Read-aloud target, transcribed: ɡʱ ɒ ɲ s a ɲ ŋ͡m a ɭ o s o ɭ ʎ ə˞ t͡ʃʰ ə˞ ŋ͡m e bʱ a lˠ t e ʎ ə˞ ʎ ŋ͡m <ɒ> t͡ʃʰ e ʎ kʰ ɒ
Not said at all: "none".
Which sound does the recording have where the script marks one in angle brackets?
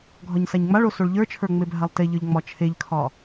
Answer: ɒ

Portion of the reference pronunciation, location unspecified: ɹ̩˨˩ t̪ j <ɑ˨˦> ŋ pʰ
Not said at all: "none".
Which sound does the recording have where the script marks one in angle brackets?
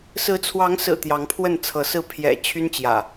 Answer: ɑ˨˦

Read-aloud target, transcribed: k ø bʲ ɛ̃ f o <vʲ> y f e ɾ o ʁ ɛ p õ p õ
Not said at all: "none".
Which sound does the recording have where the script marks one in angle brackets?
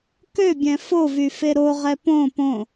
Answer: v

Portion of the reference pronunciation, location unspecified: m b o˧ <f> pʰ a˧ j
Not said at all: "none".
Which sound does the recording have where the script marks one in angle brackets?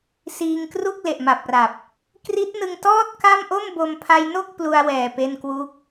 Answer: m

